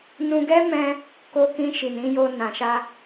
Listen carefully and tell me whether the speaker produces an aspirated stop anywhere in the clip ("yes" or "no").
no